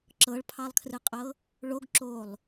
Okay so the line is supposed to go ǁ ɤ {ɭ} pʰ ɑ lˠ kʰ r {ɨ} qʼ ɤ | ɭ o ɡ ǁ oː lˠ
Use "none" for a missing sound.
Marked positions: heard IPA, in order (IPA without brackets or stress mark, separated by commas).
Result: ɭ, ɨ